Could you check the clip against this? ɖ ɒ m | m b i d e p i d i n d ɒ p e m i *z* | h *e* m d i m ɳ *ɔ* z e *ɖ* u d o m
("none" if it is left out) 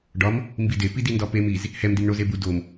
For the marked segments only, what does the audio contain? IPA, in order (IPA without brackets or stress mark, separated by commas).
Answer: z, ɛ, o, b